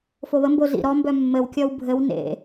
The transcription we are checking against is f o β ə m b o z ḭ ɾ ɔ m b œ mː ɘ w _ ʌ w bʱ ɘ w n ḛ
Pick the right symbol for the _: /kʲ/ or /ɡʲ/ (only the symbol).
kʲ